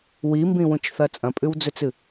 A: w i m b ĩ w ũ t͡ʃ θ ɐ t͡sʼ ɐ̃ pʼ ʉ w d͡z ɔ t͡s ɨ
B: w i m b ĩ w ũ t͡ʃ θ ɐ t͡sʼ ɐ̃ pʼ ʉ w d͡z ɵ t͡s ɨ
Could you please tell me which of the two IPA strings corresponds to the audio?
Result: B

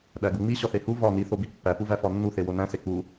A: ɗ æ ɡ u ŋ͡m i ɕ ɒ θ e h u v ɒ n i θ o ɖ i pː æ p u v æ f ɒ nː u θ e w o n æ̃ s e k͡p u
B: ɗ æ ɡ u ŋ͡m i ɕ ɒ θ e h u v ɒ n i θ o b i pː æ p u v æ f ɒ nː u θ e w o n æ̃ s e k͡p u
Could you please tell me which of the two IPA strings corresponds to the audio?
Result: B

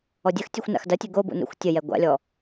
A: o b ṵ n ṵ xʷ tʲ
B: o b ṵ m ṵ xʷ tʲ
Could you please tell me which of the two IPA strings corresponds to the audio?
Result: A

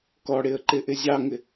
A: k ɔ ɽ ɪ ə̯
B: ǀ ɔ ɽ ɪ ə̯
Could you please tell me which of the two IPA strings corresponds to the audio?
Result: A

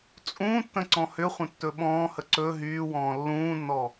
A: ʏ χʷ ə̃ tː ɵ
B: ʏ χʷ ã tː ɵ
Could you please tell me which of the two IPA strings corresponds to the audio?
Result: A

